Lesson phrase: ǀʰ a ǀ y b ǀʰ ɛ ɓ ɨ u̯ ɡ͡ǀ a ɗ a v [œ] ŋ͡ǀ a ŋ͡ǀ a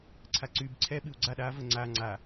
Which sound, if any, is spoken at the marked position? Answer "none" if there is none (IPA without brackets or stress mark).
ə